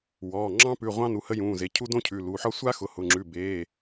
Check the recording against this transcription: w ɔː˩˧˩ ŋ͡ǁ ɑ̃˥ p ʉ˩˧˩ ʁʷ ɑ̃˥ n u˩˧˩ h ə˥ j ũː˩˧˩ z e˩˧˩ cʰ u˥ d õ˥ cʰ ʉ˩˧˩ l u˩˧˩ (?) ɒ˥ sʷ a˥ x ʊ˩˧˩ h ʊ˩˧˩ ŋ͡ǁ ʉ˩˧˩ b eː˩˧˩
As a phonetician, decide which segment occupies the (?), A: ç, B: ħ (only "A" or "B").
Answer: B